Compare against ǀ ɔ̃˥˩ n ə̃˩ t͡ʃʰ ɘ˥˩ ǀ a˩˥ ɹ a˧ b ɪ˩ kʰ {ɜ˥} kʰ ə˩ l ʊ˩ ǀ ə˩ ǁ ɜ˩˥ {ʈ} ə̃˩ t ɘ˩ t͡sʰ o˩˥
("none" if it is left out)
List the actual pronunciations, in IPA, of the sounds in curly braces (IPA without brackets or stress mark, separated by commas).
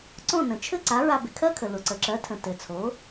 ɜ˥, tʰ